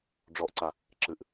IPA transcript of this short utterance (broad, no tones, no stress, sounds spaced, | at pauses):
ɖ͡ʐ ɔ ʔ ǀ a | ǁ ɨ ʔ